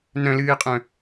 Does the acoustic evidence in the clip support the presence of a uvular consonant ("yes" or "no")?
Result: yes